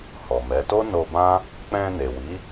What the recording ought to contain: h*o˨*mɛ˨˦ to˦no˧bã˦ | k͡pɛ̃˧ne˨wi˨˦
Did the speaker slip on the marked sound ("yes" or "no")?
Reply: yes